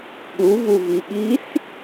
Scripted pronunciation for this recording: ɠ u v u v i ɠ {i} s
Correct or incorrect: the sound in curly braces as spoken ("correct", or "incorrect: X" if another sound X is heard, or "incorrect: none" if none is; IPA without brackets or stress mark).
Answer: correct